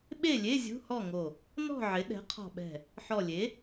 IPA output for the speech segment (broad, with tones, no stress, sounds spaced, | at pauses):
ɓ e˥˨ lʲ e˧˥˧ zʲ ṳ˧˥˧ h ɔ˥˨ ŋ o˧˩ | n ɔ̤˥˨ ʕ ɪ˩˥ ɗ ɛ̤˩˥ qʰ ɔ̤˧˩ ɓ ɛ̤˧˩ | ħ ɔ˧˩ lʲ e˩˥